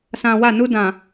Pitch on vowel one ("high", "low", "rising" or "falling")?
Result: low